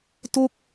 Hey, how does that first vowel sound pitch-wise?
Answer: falling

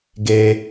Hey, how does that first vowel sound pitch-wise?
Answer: high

